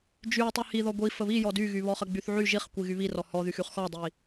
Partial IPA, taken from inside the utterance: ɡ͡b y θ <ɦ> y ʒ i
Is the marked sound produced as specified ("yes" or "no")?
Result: no